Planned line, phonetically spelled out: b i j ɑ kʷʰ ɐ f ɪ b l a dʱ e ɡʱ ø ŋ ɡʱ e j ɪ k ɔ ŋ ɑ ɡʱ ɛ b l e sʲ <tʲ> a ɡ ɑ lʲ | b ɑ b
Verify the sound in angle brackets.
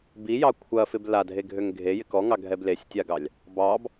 correct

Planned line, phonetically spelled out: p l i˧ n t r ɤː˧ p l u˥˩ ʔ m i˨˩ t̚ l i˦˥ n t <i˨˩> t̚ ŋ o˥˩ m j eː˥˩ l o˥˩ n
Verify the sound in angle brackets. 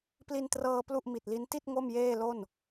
incorrect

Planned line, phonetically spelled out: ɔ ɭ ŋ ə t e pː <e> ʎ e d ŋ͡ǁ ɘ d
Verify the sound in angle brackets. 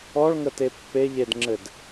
correct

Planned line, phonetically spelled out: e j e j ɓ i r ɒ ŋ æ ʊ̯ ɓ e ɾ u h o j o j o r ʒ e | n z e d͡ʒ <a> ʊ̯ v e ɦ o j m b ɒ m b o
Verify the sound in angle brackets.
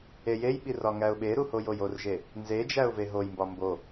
incorrect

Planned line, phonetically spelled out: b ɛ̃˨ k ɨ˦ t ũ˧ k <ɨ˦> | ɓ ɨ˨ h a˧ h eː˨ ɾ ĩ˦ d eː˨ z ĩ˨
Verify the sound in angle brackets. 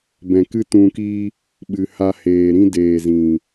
incorrect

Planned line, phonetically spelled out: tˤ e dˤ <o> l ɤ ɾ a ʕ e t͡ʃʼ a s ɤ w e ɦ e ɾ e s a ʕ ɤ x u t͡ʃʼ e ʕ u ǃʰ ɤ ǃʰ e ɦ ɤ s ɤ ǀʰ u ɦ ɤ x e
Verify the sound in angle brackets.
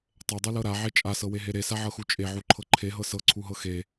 incorrect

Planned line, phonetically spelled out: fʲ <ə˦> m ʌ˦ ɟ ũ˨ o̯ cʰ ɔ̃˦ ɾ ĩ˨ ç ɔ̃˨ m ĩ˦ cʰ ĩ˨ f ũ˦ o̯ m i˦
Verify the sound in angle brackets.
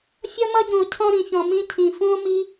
incorrect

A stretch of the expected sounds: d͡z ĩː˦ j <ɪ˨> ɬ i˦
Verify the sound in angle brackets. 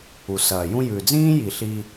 incorrect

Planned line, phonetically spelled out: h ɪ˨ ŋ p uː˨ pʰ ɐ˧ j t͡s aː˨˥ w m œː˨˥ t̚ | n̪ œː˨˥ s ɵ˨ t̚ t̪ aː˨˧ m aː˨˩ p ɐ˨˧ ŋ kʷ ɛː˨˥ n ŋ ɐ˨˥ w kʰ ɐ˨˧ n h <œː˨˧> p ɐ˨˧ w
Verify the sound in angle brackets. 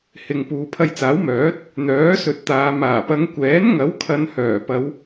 incorrect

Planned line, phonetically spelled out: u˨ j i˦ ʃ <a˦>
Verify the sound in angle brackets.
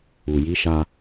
correct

